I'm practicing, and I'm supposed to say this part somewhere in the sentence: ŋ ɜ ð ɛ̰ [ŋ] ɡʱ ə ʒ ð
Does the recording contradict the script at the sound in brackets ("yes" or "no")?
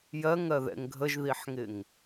no